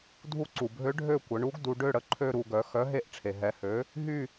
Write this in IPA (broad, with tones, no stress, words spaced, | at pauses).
dʱu˦˨ǀu˩bʱø˧˥ ɖʱø˦˨kʷə˩˧ɳu˧˥ɡ du˩˧ɖø˦˨ɽə˩˥ǃʰø˦˨ ɾu˦˨ ɡœ˩˥ xœ˩˥ ɦe˦˨ʔʈ͡ʂʰe˩ɦɛ˩˧hø˩˥ | ɦy˦˨